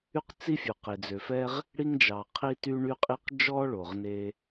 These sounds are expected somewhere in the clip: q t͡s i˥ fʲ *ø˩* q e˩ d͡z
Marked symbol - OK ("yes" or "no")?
no